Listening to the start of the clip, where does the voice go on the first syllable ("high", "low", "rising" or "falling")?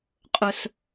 high